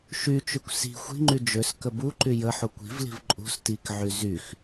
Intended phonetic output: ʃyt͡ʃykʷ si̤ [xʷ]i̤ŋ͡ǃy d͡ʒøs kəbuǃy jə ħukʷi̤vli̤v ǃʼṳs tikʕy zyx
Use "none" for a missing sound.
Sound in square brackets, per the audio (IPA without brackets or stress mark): xʷ